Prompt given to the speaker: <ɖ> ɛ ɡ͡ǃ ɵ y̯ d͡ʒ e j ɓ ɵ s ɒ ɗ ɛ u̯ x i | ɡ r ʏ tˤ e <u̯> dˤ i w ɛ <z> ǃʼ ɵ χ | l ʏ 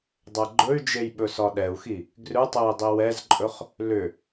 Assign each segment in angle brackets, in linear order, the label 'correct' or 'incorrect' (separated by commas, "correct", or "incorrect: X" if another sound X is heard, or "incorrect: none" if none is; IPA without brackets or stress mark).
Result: incorrect: dˤ, incorrect: i̯, correct